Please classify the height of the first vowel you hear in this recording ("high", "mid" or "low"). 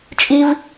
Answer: high